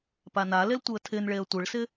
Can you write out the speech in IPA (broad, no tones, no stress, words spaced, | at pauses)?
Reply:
panalel tʷɪə̯tʰɪnɭeə̯ tʷɪɭsɪ